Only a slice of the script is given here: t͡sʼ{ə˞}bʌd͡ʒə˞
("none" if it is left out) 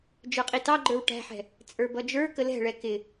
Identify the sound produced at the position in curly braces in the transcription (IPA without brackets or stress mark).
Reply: ə˞